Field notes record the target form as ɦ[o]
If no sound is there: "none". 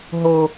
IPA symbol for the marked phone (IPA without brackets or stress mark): o